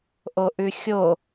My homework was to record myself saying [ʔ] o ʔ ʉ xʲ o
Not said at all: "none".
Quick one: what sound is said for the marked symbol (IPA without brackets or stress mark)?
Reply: ʔ